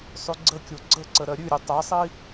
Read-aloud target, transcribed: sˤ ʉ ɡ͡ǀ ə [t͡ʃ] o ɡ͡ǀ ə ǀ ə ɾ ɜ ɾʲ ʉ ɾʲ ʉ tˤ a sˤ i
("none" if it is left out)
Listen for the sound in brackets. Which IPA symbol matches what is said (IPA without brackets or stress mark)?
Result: kʲ